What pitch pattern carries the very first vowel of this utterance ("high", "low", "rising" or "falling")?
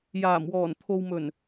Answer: low